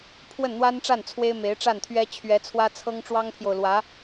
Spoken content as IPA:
pʰ w ə˥˩ n n̪ w a˥ n ʈ͡ʂ a˥˩ n t͡sʰ w e˥ ɪ̯ m e˧˥ ɪ̯ ʈ͡ʂ a˥˩ n t̪ʰ ɥ ɛ˥ t͡ɕʰ ɥ ɛ˧˥ t͡sʰ w ä˥ t͡sʰ ɤ˥ ŋ ʈ͡ʂ w ɑ˥ ŋ pʰ j o˨ ʊ̯ l w ä˧˥

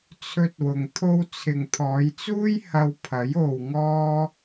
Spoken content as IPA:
t͡sʰ ɵ˧ t̚ w ʊ˨ ŋ t̪ʰ o˧ w t͡sʰ ɪ˨ ŋ t̪ʰ ɔː˨˧ j t͡s uː˥ j h ɐ˧ w pʰ ɐ˨˥ j o˨ w ŋ ɔː˧

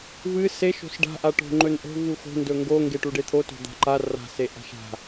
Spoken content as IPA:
v ɨ s e ʃ o̤ s ɖ a̤ ʔ a ʈ o̤ ŋ͡ǃ ɵ n ʔ o̤ v u x o̤ n d ɵ ŋ ɡ o ŋ ɡ e ʈ u ɖ e t̪ʰ o t o̤ d̪ a̤ ǃ a r a̤ s e ʔ a̤ ʃ a̤

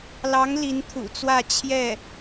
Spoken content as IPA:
l ɑ˧˥ ŋ l i˧˥ n t̪ʰ ṵ˨˩ t͡s w ä˥˧ t͡ɕʰ j ɛ˥˩

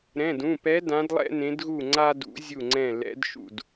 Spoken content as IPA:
ɾ ɛ̃˩˧˩ d ũ˩˧˩ p ɛ˧˥ d ã˧˥ d lˠ ɛ̰˥ n ẽ˧˥ d ɣ u˥˨ ŋ͡ǀ a˥ d ṵ˧˥ zʲ u˥˨ ŋ͡ǀ ɛ̃˥˨ l ɛ̰˧˥ d ʃ ṵ˥˨ d

